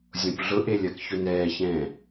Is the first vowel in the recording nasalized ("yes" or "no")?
yes